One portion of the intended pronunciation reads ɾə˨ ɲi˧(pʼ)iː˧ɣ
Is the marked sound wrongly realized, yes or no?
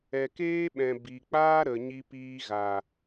yes